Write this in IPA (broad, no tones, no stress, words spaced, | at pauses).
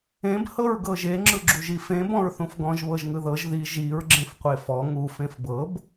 ẽb hɤɹɡɤʒe ŋ͡ǁɯɡ͡ǁuʒifẽ bɔ̃ɹθũfɡɔ̃ʒ βɤʒŋɯðɤʒ ði ʒiɹ ɡ͡ǁẽfqʷefɔ ŋu fẽfbɤb